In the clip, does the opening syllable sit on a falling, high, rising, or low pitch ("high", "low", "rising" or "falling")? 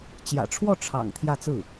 low